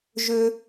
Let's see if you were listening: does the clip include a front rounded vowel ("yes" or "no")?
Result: yes